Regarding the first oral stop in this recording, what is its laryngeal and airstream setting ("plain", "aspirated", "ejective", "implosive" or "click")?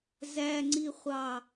click